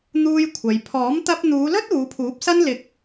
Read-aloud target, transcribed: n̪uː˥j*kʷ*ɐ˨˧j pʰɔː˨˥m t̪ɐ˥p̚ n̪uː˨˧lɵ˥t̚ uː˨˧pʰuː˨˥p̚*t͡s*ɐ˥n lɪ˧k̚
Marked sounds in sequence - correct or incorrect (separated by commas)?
incorrect, incorrect